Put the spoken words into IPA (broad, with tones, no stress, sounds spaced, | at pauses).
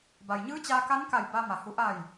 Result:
b a˩ j ɲ ɯː˧˥ t͡ɕ aː˧ k a˧˥ n k a˧˩ j b a˧ m a˩ h u˩˧ ʔ a˧˩ j